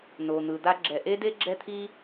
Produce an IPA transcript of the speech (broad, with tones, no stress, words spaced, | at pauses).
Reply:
no˩n̪ɯ˩ d̪a˧ɡ͡ǁɛ˩ʔe˥de˥ ɡ͡ǁɛ˥t̪ʰi˥